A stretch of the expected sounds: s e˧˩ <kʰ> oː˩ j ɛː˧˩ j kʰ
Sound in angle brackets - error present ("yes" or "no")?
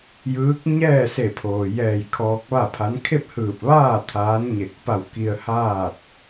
yes